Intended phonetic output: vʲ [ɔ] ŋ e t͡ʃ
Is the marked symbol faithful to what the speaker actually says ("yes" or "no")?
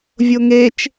no